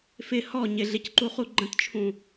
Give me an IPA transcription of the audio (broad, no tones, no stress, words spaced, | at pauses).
fɪ hɔ ɲɪɮɪcǃuχu ɡ͡ǃə̃tt͡ʃʰũ